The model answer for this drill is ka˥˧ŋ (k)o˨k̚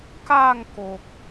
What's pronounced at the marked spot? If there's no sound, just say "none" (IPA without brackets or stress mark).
k